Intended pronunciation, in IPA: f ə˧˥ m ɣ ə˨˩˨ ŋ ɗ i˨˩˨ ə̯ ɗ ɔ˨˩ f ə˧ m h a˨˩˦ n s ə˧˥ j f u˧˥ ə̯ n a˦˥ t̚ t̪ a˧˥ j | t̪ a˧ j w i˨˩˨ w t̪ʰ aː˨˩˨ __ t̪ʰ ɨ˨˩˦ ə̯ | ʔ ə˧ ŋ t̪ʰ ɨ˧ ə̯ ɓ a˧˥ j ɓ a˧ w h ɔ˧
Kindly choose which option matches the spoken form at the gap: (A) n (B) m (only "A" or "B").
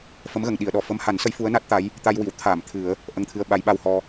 B